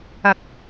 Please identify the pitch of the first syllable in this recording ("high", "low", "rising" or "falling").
low